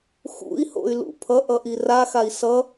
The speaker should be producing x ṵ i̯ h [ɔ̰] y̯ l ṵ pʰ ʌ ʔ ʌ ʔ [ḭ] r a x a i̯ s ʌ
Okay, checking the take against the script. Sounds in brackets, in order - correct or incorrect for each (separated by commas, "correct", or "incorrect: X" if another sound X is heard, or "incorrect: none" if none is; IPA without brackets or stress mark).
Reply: incorrect: o̰, incorrect: i